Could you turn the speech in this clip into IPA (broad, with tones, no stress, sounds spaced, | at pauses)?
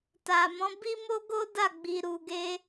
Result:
t a˨ m ɔ̃˨˦ b i˦ m o˦ ɡ o˦ d a˦˨ ɡ͡b i˧ ɾ u˧ ɡ e˦